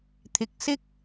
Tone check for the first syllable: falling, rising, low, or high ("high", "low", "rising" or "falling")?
rising